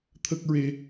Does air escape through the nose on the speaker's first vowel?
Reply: no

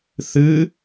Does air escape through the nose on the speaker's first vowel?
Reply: no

